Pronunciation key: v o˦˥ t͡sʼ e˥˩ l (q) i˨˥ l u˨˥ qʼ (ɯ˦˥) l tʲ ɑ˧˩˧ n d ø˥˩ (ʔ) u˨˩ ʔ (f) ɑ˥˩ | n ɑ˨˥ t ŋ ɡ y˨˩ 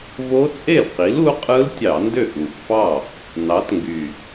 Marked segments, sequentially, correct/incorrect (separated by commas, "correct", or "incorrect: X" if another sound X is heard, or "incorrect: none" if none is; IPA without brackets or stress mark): correct, correct, correct, correct